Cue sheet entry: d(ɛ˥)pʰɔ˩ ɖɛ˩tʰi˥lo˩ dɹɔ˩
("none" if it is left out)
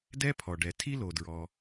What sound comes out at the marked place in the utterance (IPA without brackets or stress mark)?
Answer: ɛ˥